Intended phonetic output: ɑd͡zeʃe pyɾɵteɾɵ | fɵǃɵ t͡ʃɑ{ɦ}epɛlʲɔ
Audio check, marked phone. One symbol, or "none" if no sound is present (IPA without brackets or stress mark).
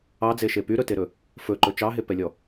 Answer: ɦ